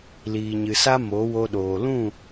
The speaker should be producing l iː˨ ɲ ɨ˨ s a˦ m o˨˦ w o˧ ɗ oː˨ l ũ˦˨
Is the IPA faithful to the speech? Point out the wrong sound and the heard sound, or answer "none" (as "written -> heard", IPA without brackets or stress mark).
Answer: none